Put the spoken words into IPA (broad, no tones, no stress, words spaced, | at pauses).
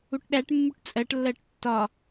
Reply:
uʈɗæʈmːuʈ t͡sʼɜʈlːɜʈ tːɒ